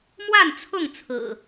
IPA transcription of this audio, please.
m w a˥˨ n t͡sʰ ʊ˥˨ ŋ t͡sʰ ɹ̩˨˩

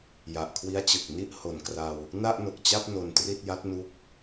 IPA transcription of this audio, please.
j a˨˩ ʔ kʰ w i˦˥ a̯ t͡ɕ ɯ˨˩ k̚ n i˥˩ ʔ h o˨˩ n k r a˧ w | n a˥˩ ʔ n o˨˩ k̚ t͡ɕ a˥˩ p̚ n o˧ n t r i˥˩ t̚ j a˦˥ t̚ n u˦˥ k̚

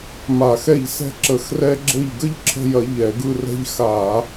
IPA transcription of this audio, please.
m a˧˩˧ x ɛ˦˨ ʎ s ɛ̤˦ ǁ ə˧˩˧ x r ɛ˦ ɡ͡ǁ ɘ˦˨ ʎ ɡ ə˦ ʎ ǁʰ ə̤˦˨ j ɐ˧˩˧ ʎ ɛ˧˩˧ ɡ ɯ˦˨ r ɛ̤˦ ʎ x a˧˩˧

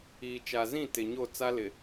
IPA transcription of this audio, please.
iː˨ t͡ʃ a˨ z ĩ˦˨ t ɪ˨ ɲ o˦˨ t͡s a˦ l ɪ˨

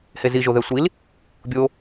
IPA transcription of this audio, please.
h e z i ʒ o ð ɛ sʷ i l | bʲ o

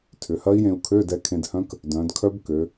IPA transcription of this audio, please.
tʰ ʏ˩˧ h ɐ˦˥ i̯ j ẽ˧ u̯ kʰ ø˧˥˧ d ɛ˧ kʰ ẽ˧ d h œ̃˦˥ k | d œ̃˩˧ d kʰ œ˦˥ b k ø˩˧

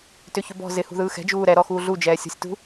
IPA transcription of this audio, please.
t ʏ ç ʏ b ɔ̤ z ɪ h ṳ ð ɯː x ɛ̤ d͡ʒ uː ɾ ɛ ɾ ɔ x uː ɮ u d͡ʒ ɛː sʲ ɔ̤ sʲ t ṳ

